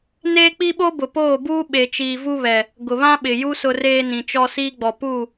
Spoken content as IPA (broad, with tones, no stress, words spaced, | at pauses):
neː˦k͡pi˦ɓo˦ bʊ˨poː˦˨buː˦ ɓe˨t͡ʃiː˨vu˦βɛ˨ | ɡʊ˨βã˦ɓɪ˨ju˦ sʊ˦reː˦nĩ˨t͡ʃɔ˦ siː˦ɡ͡bɔ˨ pu˦˨